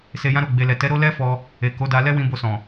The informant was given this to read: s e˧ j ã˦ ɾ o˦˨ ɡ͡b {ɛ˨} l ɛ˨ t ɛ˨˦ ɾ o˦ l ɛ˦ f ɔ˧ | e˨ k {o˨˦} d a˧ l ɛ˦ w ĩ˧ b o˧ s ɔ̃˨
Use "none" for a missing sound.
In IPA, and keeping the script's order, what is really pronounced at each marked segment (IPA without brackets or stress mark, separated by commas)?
e˨, o˨˦